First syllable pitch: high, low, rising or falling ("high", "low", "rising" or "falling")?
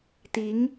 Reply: rising